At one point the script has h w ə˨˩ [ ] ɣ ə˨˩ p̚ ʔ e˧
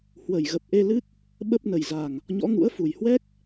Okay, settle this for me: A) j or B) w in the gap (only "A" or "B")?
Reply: A